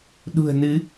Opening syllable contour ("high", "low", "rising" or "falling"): low